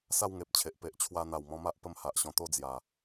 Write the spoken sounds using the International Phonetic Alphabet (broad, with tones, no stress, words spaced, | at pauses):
sa˥˧wŋe˨p̚t͡ɕʰe˨ʔ pe˨ʔt͡ɕʰwa˧n̪a˨˩w mɔ̃˧ma˦ʔpə˧m ha˨ʔɕɔ̃˧t̪o˥˧ d͡zja˨˩